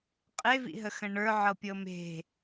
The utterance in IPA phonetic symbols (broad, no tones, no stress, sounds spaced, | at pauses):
qʼ e v ḭ ɦ ə x ə̃ ɳ ə˞ ʕ ɤ pʲ ɤ m e̤